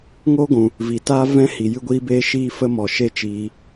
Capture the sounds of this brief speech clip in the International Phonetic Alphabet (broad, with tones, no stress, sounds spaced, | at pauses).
ŋ o˦ ɡʷ ũ˨ | v i˨ t aː˦ v ɛ̃˦ h i˨ j ɨ˧ ɡʷ iː˧ b eː˧ ʃ iː˧ f ə˦ m ɔ˨ ʃ e˦ t͡ʃ iː˧